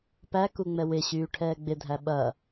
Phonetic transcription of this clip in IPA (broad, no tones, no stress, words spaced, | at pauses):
pæku ŋ͡mɛwɪɕyː ʈʰɛːɡ͡bɪdʱæ ɓɐ